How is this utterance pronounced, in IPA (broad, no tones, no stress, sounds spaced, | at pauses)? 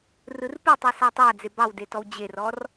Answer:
r ɯ r p ɯ tˤ ɯ s ɑ tˤ a d͡z e b ɑ w d e t ɔ w d͡ʑ e r ɔ r